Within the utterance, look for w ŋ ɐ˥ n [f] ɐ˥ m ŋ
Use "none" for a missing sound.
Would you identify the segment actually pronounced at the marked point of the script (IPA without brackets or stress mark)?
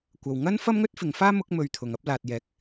f